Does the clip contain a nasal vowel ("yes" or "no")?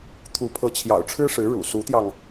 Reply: no